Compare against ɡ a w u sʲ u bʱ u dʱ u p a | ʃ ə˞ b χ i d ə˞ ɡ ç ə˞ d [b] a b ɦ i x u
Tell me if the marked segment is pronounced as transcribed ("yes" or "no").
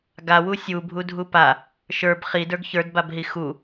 yes